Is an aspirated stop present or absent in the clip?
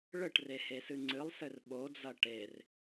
absent